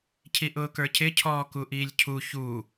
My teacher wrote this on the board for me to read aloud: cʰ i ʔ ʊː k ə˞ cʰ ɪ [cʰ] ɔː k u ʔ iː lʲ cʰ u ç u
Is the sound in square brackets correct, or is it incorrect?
correct